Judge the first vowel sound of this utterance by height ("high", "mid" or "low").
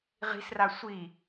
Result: high